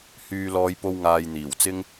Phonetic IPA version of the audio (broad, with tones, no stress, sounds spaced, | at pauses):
h yː˥ l ɔː˥ j p o˥ w ŋ aː˧ j n̪ iː˨˩ w t͡s ɪ˥ ŋ